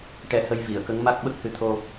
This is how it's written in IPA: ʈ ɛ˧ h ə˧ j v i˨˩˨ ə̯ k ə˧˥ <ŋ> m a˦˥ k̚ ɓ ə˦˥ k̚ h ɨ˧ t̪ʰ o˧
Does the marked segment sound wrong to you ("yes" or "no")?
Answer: no